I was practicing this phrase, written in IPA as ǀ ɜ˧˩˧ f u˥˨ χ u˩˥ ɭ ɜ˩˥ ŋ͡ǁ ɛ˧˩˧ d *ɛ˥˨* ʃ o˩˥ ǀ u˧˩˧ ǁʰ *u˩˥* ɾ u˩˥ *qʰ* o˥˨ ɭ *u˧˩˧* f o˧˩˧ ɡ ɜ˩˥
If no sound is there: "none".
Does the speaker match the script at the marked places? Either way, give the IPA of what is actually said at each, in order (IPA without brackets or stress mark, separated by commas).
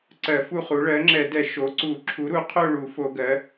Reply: ɛ˧˩˧, u˩˥, qʰ, u˧˩˧